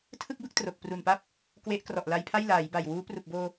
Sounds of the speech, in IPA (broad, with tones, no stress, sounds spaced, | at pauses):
tʰ ɯ˥˩ k̚ b ɯ˦˥ k̚ t r o˨˩ k̚ p r u˨˩ n p a˥˩ p̚ | k w e˦˥ ʔ k r ɔ˨˩ ʔ l a˧ j pʰ a˥˩ j l aː˩˦ j b a˨˩ j w uː˦˥ p r u˨˩ k̚ b oː˧